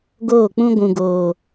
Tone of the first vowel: falling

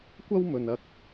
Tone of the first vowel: high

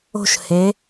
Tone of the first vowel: high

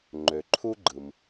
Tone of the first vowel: low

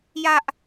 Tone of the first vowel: high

